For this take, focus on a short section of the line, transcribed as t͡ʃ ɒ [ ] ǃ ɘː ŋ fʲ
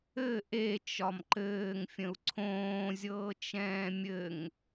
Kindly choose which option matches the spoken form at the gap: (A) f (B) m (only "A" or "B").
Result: B